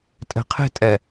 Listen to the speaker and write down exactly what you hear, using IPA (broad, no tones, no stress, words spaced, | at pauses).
tʼɛ̤qʰe̤tʼɛ